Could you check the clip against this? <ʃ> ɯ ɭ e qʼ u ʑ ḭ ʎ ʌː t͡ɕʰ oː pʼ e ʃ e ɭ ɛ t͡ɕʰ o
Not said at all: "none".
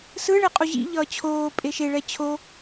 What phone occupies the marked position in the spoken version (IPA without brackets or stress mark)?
s